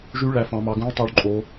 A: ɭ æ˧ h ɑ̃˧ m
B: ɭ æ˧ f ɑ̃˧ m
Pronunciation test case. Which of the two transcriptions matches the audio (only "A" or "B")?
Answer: B